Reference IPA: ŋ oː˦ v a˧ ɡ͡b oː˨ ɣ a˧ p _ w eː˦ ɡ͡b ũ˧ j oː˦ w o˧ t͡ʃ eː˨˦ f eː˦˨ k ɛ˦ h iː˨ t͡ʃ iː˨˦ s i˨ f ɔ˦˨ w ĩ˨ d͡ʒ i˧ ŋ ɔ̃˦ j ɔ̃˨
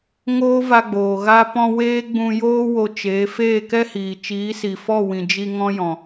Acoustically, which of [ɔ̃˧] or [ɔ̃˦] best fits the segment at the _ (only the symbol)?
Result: ɔ̃˧